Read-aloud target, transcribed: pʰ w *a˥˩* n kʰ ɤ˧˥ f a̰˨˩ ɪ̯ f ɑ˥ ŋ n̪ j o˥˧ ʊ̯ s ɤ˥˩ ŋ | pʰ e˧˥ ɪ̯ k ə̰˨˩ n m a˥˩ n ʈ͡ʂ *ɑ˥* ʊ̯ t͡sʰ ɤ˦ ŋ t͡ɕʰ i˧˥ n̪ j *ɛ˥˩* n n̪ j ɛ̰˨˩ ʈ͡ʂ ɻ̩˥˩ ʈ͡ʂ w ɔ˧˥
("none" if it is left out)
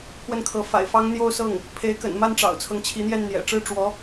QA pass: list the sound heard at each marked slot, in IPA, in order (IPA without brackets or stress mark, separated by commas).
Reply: ə˥˩, ɑ̰˨˩, ɛ˥˩